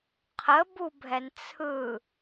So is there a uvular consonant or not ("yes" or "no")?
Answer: yes